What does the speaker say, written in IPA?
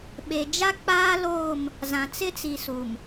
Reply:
ɓ e˨ d͡ʒ a˦ k͡p aː˦ l oː˦˨ m | z ã˨ t͡s ɪ˦ t͡s i˨ s u˨ m

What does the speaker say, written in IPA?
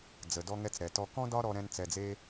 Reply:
d͡z ə˨ d ɔ˧ ŋ ɛ˧ t͡s ɾ ɛ˨ t ɔ˧ k ɔ̃˦ d ɒ˦ ɾ ɔ˧ ɾ ɛ̃˧ n t͡s ɛ˧ d͡z e˦

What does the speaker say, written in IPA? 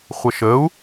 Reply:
χʷ ə ʃ ə u̯

